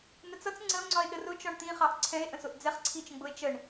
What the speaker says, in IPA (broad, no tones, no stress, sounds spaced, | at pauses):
n̪ ə t͡s ʌ t͡s ŋ͡ǀ ə o̯ ŋ͡ǀ ɒ e̯ ɗ ə r ʊ t͡ʃ ɒ ɳ t̪ ĩ χ ɑ ʔ ǀʰ ɛ̃ e̯ ʔ ə̃ s ʊ ʔ d͡z ɛ χ ǀʰ i t͡ʃ ə̃ ɡ͡b ʊ e̯ t͡ʃ ə ɳ